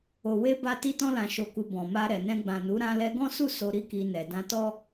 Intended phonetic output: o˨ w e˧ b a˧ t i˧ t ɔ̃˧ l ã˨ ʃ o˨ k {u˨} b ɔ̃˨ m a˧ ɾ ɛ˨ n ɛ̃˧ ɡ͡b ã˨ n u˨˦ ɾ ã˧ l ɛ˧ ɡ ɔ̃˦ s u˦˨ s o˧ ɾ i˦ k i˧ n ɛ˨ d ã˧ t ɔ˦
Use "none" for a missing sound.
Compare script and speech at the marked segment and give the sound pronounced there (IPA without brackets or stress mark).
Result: u˨